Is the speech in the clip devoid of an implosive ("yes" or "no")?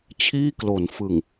yes